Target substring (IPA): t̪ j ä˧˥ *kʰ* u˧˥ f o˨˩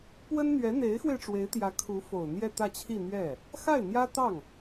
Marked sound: correct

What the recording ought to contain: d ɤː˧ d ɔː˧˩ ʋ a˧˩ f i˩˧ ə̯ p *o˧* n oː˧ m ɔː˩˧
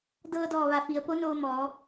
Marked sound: incorrect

